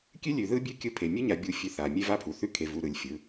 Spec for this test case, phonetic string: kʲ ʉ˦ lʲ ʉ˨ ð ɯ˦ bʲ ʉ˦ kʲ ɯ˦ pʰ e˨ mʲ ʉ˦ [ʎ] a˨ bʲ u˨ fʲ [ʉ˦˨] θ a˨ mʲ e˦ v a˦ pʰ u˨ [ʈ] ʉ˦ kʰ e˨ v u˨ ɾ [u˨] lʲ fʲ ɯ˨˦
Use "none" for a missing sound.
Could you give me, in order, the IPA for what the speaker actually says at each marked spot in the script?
ɲ, ʉ˨, θ, ɯ˨

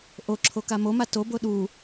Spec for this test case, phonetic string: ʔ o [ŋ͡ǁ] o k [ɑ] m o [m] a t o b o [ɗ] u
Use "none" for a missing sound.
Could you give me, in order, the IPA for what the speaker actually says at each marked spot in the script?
ǁʰ, a, m, ɗ

